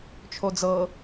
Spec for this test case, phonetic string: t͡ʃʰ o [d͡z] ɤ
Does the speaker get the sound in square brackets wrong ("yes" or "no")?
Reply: no